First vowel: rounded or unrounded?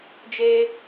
unrounded